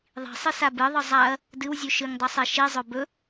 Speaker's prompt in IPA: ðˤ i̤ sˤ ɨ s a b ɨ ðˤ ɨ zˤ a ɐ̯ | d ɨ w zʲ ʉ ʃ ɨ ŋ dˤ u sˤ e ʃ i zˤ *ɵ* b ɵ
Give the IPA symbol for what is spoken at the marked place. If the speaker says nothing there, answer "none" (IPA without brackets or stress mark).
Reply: ɵ